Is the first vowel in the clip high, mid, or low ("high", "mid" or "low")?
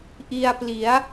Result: high